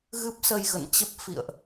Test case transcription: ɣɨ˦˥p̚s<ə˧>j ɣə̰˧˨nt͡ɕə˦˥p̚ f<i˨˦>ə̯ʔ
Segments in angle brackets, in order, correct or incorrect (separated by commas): correct, incorrect